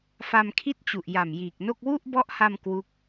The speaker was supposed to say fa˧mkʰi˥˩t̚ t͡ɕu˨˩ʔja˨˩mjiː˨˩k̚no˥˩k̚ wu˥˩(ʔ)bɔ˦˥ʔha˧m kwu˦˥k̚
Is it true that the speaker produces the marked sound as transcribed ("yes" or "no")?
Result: yes